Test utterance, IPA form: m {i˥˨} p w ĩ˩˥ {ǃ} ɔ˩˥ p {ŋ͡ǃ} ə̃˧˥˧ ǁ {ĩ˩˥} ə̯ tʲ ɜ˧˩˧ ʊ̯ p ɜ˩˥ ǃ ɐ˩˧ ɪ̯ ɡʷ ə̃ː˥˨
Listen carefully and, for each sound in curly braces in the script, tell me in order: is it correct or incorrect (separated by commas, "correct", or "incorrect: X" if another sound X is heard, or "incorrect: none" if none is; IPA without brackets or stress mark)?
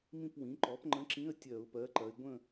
incorrect: ĩ˥˨, correct, correct, incorrect: ĩ˧˥˧